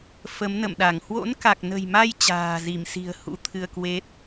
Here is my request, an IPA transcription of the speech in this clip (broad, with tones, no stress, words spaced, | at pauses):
fə˨˦mnə̰˧˨mɗa˧˩ŋ hwo̰˧˥nka˨˩k̚nə̤˨˩jma˧j t͡ɕa̤ː˨˩zi˧˩m si̤˨˩ə̯ hṵ˧˥t̪ʰɨ˧ə̯kwe˦˥t̚